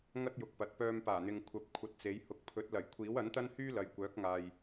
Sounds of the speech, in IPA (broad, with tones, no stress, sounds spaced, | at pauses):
ŋ ɐ˥ t̚ j ʊ˨ k̚ p ɐ˨ t̚ p œː˧ m p aː˨˩ n̪ ɪ˨ ŋ kʷʰ ɐ˨˥ p̚ kʷʰ ɐ˧ t̚ t͡s e˨˥ j h ʊ˨ k̚ pʰ ɵ˨˥ t̚ l ɐ˨˩ j kʷʰ iː˨˥ w ɐ˨˥ n t̪ ɐ˥ n h yː˥ l ɐ˨ j kʷ œː˨˥ k̚ ŋ aː˨ j